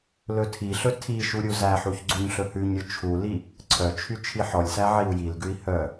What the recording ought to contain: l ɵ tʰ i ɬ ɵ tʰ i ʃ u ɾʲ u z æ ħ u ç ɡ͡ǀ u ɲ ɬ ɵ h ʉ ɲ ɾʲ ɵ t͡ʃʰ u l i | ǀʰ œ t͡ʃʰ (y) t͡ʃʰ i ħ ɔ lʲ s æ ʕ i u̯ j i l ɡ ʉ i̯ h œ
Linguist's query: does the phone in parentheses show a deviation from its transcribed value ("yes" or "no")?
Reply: no